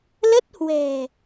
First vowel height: mid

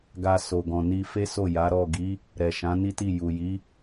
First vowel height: low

